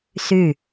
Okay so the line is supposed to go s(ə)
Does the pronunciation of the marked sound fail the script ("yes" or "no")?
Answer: yes